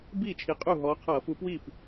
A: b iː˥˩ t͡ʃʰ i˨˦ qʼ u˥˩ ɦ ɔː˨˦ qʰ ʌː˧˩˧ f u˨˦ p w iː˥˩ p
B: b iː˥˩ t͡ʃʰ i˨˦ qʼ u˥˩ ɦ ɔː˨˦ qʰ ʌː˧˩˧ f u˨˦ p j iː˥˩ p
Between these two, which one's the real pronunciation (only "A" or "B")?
A